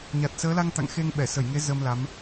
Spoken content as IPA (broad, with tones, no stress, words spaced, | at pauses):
ɲa˨˩t̚səː˨˦la˧ŋt̪a̰˧˨ŋ xe˧ŋɓɛ˧˩sə˧˩jŋe˨˦ zə˧mla˨˦m